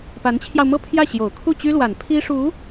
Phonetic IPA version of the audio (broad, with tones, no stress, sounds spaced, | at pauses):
p a˧˥ n t͡ɕʰ j ɑ˧ ʊ̯ m ɤ˥˧ pʰ j ä˥˩ ɕ j o˨˩ ʊ̯ kʰ u˥˩ t͡ɕ y˥ l w a˨˩ n pʰ i˥ ʂ u˧˥